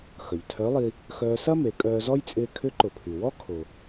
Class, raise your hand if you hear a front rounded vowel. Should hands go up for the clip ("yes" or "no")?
yes